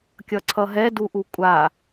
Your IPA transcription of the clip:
kʲ ʌ ǀʰ ʌ ɦ ɛ d u ʔ u kʷʼ a

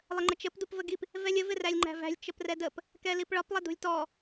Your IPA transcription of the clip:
lˠ ə ŋ͡ǃ ə t͡ʃ ə p d u p v ə ɡ i p | v ɛ lʲ ə v ɪ r æ lʲ ŋ͡ǃ æ̤ v æ̤ lʲ t͡ʃ ə p r ɛ d ə p | k ɛ l i p ɭ ɒ p lˠ ɪ d ṳ lʲ t ɔ

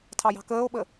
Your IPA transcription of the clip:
tʰ ɑ j ɑ̤ k əː o̯ ɓ ə

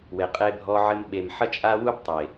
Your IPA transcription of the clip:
w e˨ qʼ e˧ bʱ ɔ˧ ʕ ɘ˧ m ɓ e˨ m ħ ɐ˦ t͡ʃʼ a˦ w u˦ b tˤ e˨

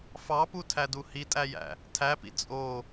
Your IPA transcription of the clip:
f ɑ p u tʰ æ d u h i tʼ æ j æ̰ | tʰ æ p ḭ t͡sʼ o

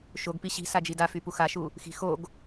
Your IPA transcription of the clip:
ʃ o ɡ p i ɕ i̤ s a d͡ʒ i d a f y p u x a ʃ u | x i̤ x o ɡ

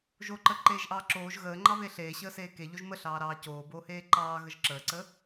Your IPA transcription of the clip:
ʒ o ǃ ə ǃ eː ʒ ʔ ɑː ǁ oː ʒ ɣ əː ŋ͡ǃ ɑ β e ɬ eː ɕ əː s eː k e ʎ o ʒ m ə ɬ ɑː ɾ ɑː c oː b oː h eː ǃ ɑː ɣ ə ʒ ǁ əː ǀ ə

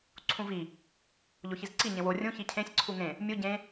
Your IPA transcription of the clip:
ǀʰ ũ v i | ʎ o ç i z ǀ i ɲ ẽ w o rʲ ũ ç i cʰ ẽ sʲ ǀʰ u ŋ ẽ | mʲ u ɟ ẽ

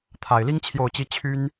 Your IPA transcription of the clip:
t̪ʰ a˨˩ ɪ̯ l i˥ ŋ t͡ɕʰ j o˥˩ ʊ̯ t͡ɕ i˥ t͡ɕʰ y˥ n

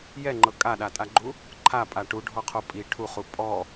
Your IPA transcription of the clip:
j ɛ ŋ͡ǃ ɤ kʼ a ɗ a tʼ a ɡ͡ǃ u | ǃʰ a pʼ a ʈ u ɖʱ ɔ qʰ o pʼ i ʈʰ u χ u pʼ ɔ

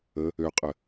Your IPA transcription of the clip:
ə | ø qʼ ə

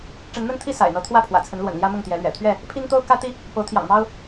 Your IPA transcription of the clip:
ʈ͡ʂ ə˨˦ n n̪ ə˦ n t̪ʰ i˥˨ s a̰˨˩ ɪ̯ n̪ ɤ˨˦ t̪ʰ w ä˥˨ pʰ w ä̰˨˩ t͡sʰ ə˨˦ n l w ə̰˨˩ n l j ä˦ m ʊ˥˨ ŋ t̪ j ɛ˨˦ l ɥ ɛ̰˨˩ t̪ʰ ɥ ɛ˥˨ | pʰ i˦ ŋ t̪ o˦ ʊ̯ k ä˦ t̪ i˦ | p o˨˦ ʊ̯ t̪ʰ j ɑ̰˨˩ ŋ m ɑ˦ ʊ̯

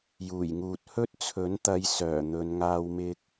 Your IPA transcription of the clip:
j uː˨˩ j ŋ uː˨ t̚ h ɵ˥ t̚ t͡sʰ ɵ˨˥ n t̪ ɐ˧ j s œː˨˩ n̪ ɵ˨˧ n ŋ aː˥ w m ɪ˥ k̚

